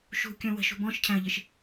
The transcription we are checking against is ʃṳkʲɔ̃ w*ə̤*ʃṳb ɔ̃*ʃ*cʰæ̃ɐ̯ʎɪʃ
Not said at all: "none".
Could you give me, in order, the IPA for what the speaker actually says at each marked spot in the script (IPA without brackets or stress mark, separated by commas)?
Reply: ə̤, ʃ